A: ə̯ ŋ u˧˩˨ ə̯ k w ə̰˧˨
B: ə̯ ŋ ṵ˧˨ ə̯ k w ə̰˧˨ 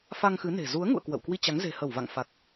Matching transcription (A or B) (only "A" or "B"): B